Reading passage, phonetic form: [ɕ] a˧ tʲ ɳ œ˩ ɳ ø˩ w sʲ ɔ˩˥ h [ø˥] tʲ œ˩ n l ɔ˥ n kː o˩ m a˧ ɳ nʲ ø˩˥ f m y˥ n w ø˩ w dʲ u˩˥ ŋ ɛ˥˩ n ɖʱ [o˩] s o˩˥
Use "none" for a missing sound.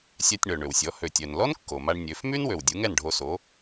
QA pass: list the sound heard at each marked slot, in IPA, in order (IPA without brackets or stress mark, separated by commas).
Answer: sʲ, ø˩, o˧